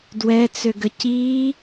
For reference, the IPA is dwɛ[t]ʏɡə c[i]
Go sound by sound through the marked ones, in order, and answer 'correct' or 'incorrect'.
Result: incorrect: t͡s, correct

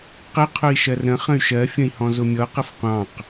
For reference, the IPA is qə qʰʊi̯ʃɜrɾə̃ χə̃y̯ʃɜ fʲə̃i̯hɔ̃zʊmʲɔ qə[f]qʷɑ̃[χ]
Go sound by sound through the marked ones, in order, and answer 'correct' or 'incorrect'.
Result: correct, incorrect: q

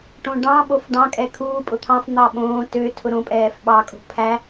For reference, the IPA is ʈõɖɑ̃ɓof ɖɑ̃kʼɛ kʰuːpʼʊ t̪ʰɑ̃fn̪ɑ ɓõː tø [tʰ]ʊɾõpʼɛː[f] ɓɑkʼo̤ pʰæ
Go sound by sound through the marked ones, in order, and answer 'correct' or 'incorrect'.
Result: correct, correct

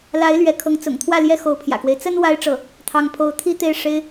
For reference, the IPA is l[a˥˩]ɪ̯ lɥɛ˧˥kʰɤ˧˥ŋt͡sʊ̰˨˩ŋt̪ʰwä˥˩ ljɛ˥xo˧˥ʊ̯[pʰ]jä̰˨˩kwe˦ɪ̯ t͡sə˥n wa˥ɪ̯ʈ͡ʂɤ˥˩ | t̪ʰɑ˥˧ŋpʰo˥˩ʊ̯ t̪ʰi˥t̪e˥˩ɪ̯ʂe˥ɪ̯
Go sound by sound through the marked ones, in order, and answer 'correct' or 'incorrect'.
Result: incorrect: a˧˥, correct

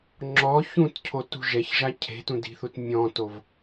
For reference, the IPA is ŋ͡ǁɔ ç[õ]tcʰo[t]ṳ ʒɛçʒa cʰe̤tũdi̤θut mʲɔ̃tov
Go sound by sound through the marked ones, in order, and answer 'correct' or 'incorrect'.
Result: incorrect: ũ, correct

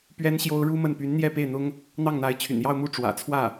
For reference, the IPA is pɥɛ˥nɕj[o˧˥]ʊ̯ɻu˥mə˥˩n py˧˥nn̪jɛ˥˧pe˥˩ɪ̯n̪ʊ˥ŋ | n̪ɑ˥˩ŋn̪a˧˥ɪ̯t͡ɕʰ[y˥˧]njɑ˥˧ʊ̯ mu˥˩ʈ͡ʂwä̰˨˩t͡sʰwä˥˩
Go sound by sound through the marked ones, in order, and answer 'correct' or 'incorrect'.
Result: incorrect: o˥, incorrect: y̰˨˩

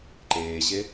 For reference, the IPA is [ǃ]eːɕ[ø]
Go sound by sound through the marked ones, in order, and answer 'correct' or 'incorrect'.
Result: correct, incorrect: e

